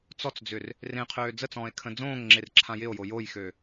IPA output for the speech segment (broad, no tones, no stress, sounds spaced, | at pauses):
t͡s ɔ t͡s d͡z ʏ r | r ẽ qʰ øː d͡z ə t͡s ɔ̃ː e̯ kʰ ə̃ d͡z õː ŋ ŋ͡ǁ e r ǁʰ ã j ɪ o̯ j o j o j x ø